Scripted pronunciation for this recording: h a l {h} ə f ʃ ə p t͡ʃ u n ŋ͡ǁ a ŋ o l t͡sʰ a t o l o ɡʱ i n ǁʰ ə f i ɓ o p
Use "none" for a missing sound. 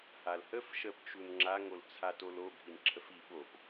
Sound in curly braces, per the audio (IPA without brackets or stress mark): h